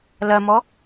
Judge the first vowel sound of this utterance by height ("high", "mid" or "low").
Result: low